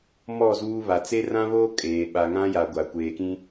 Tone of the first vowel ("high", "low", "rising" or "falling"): falling